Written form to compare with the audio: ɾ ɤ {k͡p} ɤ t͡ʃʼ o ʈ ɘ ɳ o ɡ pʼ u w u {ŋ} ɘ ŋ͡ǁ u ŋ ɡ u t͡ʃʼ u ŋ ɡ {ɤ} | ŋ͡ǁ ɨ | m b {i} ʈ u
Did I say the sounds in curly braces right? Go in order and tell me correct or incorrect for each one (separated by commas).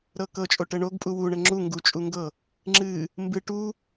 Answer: incorrect, incorrect, correct, incorrect